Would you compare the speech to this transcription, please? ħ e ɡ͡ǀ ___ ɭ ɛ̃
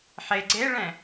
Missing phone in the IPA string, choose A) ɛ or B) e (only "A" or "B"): B